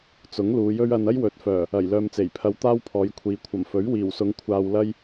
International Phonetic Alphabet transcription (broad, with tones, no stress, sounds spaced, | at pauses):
t͡s ʊ˨˥ ŋ l uː˨˧ j ɵ˥ ɥ ɐ˧ n ɐ˥ j w ɵ˨˥ t̚ f œː˨˩ | ɐ˨˩ j l œː˨ m t͡s e˨˩ j pʰ ɐ˧ w t̪ aː˥ w pʰ ɔː˨˧ j kʷʰ iː˨ kʷʰ ɐ˨˩ m f ɵ˨˥ ɥ w iː˨˩ w s ʊ˨˧ ŋ kʷʰ aː˧ w l ɐ˥ j